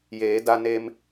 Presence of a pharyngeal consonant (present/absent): absent